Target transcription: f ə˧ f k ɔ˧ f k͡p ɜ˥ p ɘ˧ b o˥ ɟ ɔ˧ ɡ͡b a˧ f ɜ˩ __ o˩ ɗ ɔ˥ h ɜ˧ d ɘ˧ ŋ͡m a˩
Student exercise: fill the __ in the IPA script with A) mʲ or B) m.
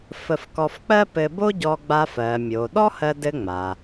A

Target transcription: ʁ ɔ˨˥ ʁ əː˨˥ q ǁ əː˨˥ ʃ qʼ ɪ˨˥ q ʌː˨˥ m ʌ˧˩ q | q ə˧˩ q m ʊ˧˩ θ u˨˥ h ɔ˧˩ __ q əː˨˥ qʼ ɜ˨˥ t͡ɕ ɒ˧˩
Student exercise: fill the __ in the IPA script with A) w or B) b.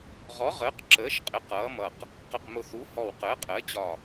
A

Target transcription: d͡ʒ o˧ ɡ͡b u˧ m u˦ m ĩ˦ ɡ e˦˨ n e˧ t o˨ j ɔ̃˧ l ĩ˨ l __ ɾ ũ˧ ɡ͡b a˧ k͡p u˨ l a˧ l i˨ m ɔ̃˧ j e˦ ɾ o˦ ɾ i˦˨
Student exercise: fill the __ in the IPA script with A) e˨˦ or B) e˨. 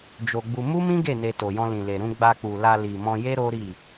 B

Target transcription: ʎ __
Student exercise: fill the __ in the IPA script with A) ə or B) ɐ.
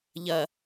B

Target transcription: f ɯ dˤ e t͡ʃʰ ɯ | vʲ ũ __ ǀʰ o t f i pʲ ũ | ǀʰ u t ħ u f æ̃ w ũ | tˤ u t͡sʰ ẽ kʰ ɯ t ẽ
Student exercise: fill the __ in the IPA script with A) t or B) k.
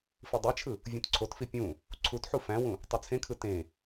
A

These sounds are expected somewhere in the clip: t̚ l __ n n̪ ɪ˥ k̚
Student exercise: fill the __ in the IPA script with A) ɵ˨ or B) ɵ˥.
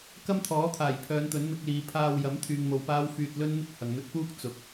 B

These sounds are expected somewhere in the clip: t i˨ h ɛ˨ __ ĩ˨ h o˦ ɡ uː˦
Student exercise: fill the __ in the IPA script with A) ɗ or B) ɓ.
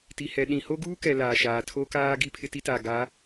A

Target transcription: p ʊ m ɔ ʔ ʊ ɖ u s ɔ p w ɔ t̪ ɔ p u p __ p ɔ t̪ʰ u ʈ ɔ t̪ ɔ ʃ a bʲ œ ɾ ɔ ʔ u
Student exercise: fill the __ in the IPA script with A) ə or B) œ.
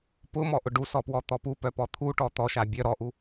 B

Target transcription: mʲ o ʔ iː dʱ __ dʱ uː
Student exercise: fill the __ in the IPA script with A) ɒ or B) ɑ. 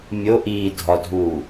A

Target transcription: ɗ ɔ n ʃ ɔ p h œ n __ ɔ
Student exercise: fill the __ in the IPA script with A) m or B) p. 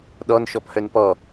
B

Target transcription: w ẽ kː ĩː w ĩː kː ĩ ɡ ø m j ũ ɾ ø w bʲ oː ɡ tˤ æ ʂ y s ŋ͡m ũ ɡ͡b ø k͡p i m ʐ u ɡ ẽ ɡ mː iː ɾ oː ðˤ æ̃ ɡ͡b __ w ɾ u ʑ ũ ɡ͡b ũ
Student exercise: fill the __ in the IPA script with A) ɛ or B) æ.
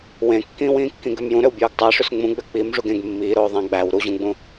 B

